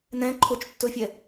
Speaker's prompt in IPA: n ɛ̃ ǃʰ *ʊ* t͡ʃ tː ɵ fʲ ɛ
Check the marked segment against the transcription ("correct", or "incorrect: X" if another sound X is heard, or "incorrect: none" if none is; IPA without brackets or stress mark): correct